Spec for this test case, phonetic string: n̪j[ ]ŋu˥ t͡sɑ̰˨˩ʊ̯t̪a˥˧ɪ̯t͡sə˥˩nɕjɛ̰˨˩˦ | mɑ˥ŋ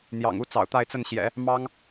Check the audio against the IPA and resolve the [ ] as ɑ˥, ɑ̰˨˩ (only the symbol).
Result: ɑ̰˨˩